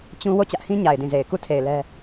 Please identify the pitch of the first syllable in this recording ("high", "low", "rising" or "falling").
high